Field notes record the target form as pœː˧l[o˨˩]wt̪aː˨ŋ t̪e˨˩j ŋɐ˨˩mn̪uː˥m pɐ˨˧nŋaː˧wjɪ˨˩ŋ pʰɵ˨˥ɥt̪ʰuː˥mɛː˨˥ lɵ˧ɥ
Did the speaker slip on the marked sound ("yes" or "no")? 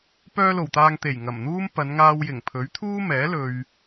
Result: no